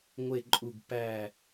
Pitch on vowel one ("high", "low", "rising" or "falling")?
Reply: falling